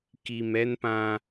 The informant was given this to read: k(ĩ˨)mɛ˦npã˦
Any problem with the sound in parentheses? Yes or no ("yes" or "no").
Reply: yes